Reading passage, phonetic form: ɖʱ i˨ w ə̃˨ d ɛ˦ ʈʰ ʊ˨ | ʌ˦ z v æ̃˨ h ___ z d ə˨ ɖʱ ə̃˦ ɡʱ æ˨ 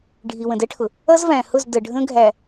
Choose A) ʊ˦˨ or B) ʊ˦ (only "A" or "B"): A